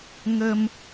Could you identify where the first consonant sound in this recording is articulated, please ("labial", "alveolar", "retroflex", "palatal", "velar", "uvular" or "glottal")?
velar